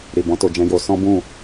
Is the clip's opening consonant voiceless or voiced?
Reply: voiced